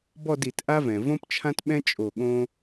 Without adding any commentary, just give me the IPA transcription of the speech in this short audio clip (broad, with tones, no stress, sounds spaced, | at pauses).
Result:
b ɔ˥˧ d i˧˩˧ t ʔ a˥ v ɛ̃˩ v õ˥ p t͡ʃʰ ã˥ t ɓ ɛ̃˥ t͡ʃʼ o˧˩ ɠ õ˥